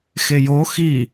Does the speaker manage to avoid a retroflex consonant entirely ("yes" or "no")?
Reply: yes